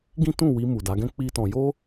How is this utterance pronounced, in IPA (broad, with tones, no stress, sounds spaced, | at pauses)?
ɡ ĩ˦ t ũ˦˨ w i˧ m u˨ d a˨˦ ɡ ɛ̃˦ k͡p i˦ t ɔ̃˧ j o˦